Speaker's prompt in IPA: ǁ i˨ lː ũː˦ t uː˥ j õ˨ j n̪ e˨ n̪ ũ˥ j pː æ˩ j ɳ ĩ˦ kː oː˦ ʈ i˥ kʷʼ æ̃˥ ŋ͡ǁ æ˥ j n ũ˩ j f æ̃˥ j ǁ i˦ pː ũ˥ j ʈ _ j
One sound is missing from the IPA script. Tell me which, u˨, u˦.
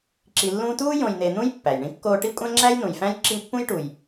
u˨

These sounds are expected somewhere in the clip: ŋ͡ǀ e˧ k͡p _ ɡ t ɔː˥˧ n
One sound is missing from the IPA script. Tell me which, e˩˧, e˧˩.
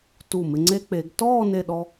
e˩˧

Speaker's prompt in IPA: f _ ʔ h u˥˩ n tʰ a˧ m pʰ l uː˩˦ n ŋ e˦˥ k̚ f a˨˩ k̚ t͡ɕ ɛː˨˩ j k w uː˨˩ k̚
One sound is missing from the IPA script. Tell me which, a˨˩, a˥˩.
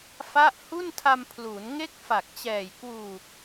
a˥˩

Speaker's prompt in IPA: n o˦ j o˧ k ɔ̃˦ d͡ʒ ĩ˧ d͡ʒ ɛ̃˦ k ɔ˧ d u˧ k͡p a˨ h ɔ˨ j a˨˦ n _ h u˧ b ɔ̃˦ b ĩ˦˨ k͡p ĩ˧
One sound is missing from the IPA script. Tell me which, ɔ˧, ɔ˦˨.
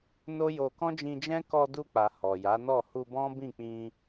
ɔ˦˨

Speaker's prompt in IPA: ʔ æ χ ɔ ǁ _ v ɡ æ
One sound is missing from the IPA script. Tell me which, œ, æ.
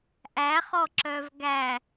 œ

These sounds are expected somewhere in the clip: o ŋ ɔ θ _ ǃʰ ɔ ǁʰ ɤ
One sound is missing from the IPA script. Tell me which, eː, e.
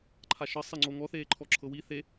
eː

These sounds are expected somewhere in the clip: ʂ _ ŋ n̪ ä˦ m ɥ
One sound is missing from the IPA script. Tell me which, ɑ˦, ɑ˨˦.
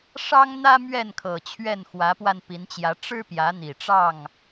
ɑ˦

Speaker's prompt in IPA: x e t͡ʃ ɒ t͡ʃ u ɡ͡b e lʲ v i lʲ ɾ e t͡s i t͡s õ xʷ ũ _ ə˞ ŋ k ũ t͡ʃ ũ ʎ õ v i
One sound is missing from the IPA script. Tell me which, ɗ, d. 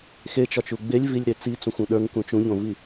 ɗ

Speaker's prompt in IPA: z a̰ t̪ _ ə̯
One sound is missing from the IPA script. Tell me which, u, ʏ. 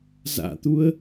u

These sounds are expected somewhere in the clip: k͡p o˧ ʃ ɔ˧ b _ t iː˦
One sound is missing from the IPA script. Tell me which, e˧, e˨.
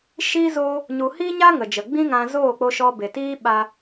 e˨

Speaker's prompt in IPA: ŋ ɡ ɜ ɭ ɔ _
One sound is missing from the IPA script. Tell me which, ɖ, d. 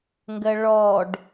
ɖ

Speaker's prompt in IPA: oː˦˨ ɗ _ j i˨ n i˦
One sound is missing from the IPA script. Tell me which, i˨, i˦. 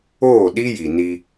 i˦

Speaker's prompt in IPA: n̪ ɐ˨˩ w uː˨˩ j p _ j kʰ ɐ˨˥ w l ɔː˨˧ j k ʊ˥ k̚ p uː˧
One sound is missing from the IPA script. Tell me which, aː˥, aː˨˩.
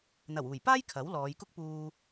aː˥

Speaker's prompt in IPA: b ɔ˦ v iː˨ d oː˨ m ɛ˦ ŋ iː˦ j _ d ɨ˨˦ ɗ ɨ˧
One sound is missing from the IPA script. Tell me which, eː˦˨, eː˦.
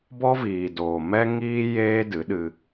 eː˦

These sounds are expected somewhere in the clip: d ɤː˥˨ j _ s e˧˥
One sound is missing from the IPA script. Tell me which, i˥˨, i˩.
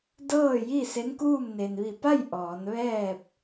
i˥˨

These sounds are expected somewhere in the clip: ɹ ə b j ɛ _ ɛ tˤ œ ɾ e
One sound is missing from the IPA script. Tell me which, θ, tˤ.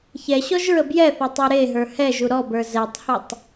θ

